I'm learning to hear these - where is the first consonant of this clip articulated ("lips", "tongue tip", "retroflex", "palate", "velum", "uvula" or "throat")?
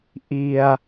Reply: throat